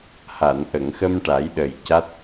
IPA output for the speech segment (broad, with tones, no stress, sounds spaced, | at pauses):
h a˨˩˨ n ʔ ə˨˩˨ ŋ x ə˧ m ʈ a˨˩˦ j ɗ ə˨˩ j c a˦˥ t̚